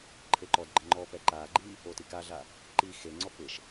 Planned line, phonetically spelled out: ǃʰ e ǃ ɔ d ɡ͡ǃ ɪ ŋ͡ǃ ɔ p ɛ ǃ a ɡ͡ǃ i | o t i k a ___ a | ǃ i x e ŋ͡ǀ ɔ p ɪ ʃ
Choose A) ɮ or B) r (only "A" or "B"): A